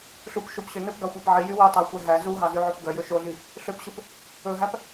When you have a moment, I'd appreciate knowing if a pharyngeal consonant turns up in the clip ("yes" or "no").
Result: yes